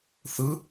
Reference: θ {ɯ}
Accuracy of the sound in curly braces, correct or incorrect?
correct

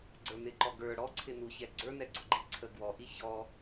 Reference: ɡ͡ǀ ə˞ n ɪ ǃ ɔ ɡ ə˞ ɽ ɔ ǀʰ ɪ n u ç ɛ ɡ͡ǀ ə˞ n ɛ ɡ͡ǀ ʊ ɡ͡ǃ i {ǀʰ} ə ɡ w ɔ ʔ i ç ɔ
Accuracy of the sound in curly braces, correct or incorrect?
correct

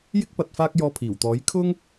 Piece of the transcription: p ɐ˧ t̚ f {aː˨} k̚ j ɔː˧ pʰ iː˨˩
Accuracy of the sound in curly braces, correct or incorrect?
incorrect: aː˥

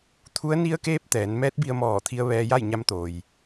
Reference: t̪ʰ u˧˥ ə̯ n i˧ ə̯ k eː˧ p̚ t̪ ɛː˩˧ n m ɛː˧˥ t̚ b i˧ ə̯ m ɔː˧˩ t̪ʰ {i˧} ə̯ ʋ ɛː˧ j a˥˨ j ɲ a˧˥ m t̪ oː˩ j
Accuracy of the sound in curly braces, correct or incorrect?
correct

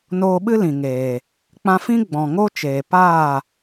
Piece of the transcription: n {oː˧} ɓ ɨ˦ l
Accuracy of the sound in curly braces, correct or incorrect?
correct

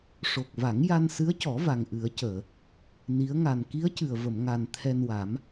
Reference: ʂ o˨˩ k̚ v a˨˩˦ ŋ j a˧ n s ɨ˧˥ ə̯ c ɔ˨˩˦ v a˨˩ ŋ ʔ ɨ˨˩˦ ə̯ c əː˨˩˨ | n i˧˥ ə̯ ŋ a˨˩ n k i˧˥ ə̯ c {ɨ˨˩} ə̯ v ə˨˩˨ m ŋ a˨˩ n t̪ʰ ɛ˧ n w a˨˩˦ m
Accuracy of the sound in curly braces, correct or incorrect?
correct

